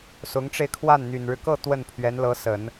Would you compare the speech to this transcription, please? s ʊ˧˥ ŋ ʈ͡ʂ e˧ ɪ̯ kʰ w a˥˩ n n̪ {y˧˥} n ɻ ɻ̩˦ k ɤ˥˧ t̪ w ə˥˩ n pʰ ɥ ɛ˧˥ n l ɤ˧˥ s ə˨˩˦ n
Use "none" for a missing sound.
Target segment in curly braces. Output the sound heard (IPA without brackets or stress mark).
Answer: y˨˩